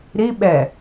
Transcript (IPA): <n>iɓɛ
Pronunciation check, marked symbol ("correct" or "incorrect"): incorrect